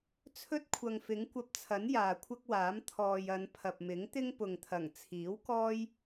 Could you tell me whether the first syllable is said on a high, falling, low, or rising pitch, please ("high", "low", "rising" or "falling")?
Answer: high